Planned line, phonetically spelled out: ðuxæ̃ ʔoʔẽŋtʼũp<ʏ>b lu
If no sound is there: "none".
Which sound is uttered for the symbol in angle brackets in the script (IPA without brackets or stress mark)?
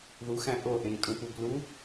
u